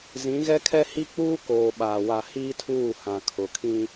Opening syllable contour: rising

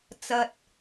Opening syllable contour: high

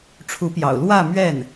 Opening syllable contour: rising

